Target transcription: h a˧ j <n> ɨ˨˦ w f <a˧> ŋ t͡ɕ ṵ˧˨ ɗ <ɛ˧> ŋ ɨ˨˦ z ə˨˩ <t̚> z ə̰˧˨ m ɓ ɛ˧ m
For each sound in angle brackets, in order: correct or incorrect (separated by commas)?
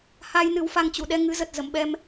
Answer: correct, correct, correct, correct